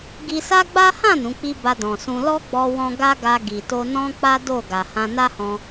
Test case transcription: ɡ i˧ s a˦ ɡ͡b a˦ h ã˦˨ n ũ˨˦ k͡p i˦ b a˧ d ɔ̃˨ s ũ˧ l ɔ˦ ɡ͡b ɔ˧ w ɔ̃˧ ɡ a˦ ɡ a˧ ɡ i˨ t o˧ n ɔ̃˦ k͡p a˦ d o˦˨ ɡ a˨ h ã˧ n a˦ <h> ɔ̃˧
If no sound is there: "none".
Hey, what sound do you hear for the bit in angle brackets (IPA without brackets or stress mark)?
h